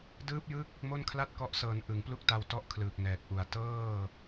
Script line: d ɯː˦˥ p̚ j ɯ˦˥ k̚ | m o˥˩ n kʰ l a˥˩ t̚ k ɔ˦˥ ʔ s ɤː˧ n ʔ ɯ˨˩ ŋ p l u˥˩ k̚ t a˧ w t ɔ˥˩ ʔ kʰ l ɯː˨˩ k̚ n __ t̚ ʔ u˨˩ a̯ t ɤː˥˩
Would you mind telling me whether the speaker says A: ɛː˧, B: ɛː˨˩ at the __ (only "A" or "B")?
B